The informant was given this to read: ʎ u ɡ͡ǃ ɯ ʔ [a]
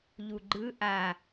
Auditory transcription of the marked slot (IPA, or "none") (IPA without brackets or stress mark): a